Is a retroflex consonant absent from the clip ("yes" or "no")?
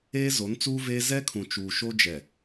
yes